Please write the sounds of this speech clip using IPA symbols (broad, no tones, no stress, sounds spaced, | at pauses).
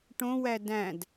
ʈ õ w æ d æ̃ d